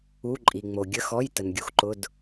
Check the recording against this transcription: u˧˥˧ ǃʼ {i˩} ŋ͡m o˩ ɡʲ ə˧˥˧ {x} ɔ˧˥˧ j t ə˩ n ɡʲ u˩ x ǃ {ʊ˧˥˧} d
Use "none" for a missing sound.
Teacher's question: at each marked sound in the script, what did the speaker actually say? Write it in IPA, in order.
i˩, x, ʊ˧˥˧

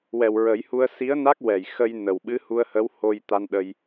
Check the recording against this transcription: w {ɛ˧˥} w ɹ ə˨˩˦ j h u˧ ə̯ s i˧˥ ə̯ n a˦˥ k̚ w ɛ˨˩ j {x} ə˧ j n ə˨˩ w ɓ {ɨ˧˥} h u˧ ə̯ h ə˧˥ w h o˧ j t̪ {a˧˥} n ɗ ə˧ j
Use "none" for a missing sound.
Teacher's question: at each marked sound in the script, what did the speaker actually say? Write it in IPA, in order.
ɛ˨˩, x, ɨ˧˥, a˧

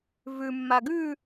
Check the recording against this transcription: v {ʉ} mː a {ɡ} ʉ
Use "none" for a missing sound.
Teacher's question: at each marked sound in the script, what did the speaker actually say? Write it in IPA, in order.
ʉ, ɡ

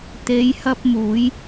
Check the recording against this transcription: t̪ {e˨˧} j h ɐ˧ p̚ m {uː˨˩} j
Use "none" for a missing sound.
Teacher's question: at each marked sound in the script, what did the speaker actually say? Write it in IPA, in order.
e˨˧, uː˨˧

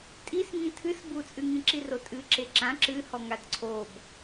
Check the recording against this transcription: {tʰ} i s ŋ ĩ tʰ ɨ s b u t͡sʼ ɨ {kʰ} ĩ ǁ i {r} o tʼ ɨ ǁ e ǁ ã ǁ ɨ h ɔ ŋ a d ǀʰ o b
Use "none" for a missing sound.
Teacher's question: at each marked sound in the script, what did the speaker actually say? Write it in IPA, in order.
tʼ, ŋ, r

